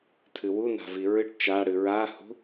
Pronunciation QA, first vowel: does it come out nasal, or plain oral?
oral